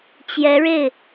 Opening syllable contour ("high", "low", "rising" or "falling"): rising